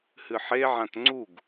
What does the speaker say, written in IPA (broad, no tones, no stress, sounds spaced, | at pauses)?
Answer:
h ɨ ħ e ʕ ã t ŋ͡ǀ u ɡ